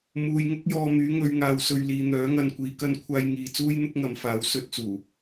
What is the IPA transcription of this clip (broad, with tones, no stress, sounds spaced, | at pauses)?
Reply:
m uː˨ j ŋ ʊ˥ k̚ j ɔː˧ m yː˨˥ ŋ ɵ˨˧ ɥ ŋ aː˨ w s ɵ˧ ɥ l iː˨ n̪ œː˨˥ ŋ ɐ˧ n kʷ iː˨˧ k ɐ˥ n kʷʰ aː˧ j ŋ iː˧ t͡s uː˥ j n̪ ʊ˥ k̚ ŋ ɐ˨˥ m f aː˨˥ w s ɵ˧ t̚ t͡s uː˨˩